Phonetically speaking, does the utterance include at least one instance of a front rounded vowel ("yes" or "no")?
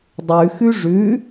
no